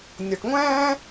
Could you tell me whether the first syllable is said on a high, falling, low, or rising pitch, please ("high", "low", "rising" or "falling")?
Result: low